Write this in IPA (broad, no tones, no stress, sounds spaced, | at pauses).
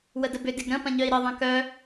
w ə d ə b ʏ d ɪ ɡ ɾ ə̃ p ɐ̃ ɲ œ i̯ ɾ ɐ ðˤ ɐ̃ k œ